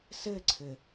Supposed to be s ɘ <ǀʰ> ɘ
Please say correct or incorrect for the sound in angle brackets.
correct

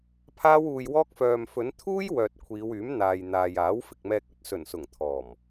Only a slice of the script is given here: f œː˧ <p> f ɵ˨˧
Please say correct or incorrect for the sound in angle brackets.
incorrect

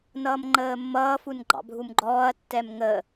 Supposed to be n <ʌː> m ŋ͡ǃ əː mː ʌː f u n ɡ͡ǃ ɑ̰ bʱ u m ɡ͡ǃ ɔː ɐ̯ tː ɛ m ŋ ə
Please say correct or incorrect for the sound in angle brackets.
correct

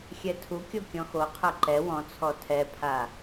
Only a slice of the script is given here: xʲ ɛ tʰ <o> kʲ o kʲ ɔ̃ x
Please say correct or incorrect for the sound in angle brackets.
incorrect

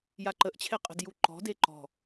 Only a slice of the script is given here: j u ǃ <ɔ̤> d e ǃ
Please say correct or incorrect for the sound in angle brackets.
correct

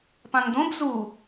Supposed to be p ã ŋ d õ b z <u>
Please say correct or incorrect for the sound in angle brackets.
correct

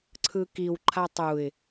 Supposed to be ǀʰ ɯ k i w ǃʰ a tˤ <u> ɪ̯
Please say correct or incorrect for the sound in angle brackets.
correct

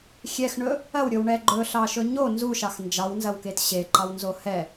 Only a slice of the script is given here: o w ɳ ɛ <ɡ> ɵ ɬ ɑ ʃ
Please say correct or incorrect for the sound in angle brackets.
incorrect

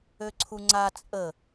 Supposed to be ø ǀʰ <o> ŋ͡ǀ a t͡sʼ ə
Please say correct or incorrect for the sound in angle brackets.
incorrect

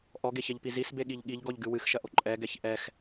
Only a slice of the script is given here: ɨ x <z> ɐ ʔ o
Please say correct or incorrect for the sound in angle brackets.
incorrect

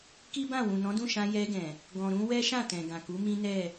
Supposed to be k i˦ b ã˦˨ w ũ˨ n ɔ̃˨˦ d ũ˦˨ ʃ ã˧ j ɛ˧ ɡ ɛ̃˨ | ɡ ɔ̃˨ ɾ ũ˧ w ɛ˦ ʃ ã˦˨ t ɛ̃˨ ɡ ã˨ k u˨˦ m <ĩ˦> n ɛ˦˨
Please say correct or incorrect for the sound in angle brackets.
correct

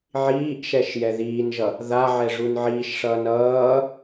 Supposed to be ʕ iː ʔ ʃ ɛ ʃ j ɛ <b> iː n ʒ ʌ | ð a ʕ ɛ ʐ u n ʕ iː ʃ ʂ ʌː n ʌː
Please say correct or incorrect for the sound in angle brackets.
incorrect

